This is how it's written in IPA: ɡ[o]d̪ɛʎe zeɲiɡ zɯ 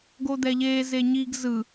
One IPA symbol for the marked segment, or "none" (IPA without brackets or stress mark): o